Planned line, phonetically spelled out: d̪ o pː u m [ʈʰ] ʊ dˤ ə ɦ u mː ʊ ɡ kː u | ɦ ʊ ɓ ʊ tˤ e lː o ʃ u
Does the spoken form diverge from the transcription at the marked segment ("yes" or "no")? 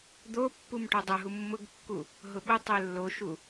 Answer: yes